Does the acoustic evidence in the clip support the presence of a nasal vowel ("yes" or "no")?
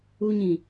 yes